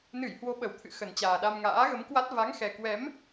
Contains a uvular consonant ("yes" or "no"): no